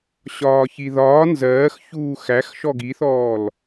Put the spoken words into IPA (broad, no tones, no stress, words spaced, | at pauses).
ɕɒːçiðɒː nzɜːxçuː xæx ʃɔɡiθɔːl